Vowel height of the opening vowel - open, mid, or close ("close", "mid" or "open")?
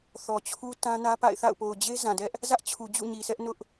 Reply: mid